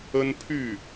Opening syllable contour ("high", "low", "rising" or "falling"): high